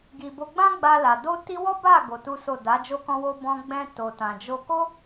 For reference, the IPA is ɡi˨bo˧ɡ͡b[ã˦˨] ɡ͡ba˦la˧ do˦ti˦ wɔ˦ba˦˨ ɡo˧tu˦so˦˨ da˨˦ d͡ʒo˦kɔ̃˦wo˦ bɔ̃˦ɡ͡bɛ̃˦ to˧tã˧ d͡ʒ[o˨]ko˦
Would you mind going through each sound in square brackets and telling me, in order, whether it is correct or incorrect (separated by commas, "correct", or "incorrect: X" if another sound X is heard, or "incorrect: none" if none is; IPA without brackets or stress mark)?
incorrect: ã˦, incorrect: o˧